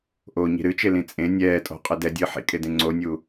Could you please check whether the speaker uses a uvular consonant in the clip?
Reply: yes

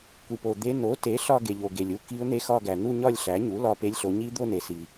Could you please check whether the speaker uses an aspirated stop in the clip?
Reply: no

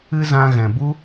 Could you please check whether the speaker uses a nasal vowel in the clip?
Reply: yes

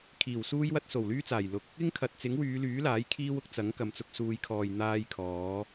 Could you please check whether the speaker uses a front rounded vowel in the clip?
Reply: yes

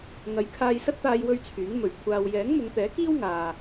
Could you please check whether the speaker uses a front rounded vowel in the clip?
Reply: yes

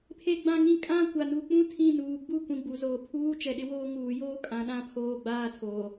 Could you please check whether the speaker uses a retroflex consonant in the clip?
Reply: no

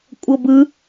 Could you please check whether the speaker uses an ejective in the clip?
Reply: yes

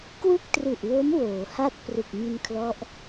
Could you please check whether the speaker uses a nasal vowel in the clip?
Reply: no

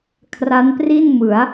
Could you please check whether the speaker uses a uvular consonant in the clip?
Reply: no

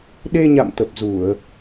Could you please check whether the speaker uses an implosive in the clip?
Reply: yes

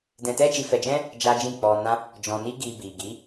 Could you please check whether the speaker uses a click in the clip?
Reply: no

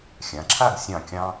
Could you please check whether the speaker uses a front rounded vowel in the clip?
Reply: no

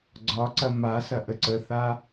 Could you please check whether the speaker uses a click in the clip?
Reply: yes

